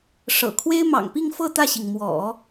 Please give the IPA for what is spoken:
ʂ ɤ̰˨˩ kʰ w e˥ ɪ̯ m ɑ̰˨˩ ŋ p i˥˧ ŋ f ɤ˥˧ t̪ ä˥˩ ɕ i˩ ŋ m w ɔ̰˨˩˦

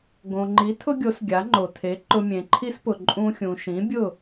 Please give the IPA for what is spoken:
ɡ õ˩ ŋ͡ǃ i˩˥ tʰ ʊ˥ ɡʲ o˩˥ s ɡʲ a˩˥ ŋ͡ǃ o˩ tʰ e˩˥ ǃ ʊ˧ mʲ ẽ˩ ǃʰ i˥ s p ʊ˩ ǃʼ ũ˧ xʲ ũ˩ ʃ ĩ˩˥ bʲ ʊ˥˩

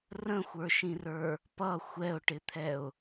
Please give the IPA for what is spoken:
r ə̃ xʷ ə˞ ʃ ĩ r ə˞ | p ʌ xʷ ɛ ʊ̯ ʈ ɪ t̪ʰ ɛ ʊ̯

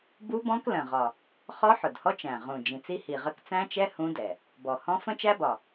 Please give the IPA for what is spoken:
b u˦˥ b ɔ̃˦˥ k l ə̃˨˩ ʁ ɒ˨˩ | χ ɔ˦˥ ħ ʊ˨˩ d h ɔ˦˥ t͡ʃ æ̃˨˩ ʁ ũ˨˩ d͡ʒ ĩ˨˩ t͡s i˦˥ h i˨˩ ʁ ə˦˥ k t͡s æ̃˦˥ t͡ʃ ɛ˦˥ h ũ˦˥ d ɛ˨˩ | b ɔ˨˩ h ɔ̃˦˥ f ə̃˦˥ t͡ʃ æ˦˥ b ɒ˨˩

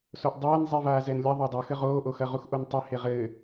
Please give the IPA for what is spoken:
s o ʔ dˤ ɛː n zˤ i v aː z ɛ n lʲ ɐ ðˤ o dˤ o x ɘ ʁ oː ʔ o x ɐ ʁ u x ʔ o n tˤ i h e ʁ ɘː

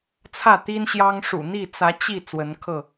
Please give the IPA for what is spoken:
t͡sʰ ä˥˨ t̪ i˦ n ɕ j ɑ˦ ŋ ʂ ṵ˨˩ n̪ i˥˨ t͡s ä˨˦ t͡ɕ i˥˨ t͡s w ə˨˦ n kʰ ɤ˥˨

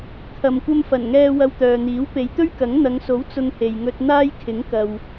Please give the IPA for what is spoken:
kʰ ɐ˨ m kʷ ɐ˧ m f ɐ˨˩ n ŋ ɛː˧ w ɐ˧ w t̪ œː˨ n̪ iː˨˥ w p e˨˧ j t̪ ɵ˥ ɥ k ɐ˨˥ ŋ n̪ ɐ˨˧ ŋ s o˨˥ w t͡s ʊ˧ ŋ h e˨ j ŋ ɵ˧ t̚ n̪ aː˥ j kʰ ɪ˨˥ ŋ k ɐ˨ w

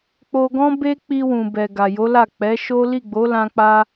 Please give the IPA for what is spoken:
k͡p o˧ ɡ ɔ̃˦ b e˦ k͡p i˧ w ũ˨ b ɛ˨ ɡ a˨ j o˨˦ l a˦˨ k͡p ɛ˨˦ ʃ o˦ l i˦˨ ɡ͡b o˨˦ l ã˧ k͡p a˧

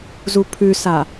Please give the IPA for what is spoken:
z u pʰ ʉ s a

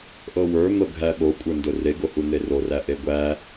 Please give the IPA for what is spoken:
ʔ ɤ w ə˞ n̪ ɤ ɡʱ æ ɓ o kʷʼ ə˞ n d ʊ r e ɡ o h u n̪ e r o r æ ʔ e ɡʷ æ

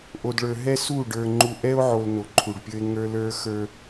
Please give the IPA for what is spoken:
ʔ o˨ d ɭ ə˞˨ ɦ ɛ˦ s u˦˨ ɖ ə˞˨ ŋ͡ǃ u˨ ʔ ɛ˦ o̯ ʕ o˨ l n o˨ ǃʰ u˨ ɖ pʲ ə˞˦ e̯ ŋ ə˞˦ l ə˞˦ x ə˞˦

